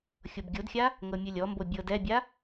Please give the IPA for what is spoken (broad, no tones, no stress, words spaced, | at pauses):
xʲobɡʲodxʲa | ŋɤmʲɯlʲɔmbo bʲɤdɛbʲa